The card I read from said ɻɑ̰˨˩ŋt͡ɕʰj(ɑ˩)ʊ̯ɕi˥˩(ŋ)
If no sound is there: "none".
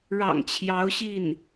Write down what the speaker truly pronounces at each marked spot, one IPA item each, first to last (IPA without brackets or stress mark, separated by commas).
ɑ˧˥, n